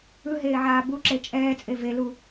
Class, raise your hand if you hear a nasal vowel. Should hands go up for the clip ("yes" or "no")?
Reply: no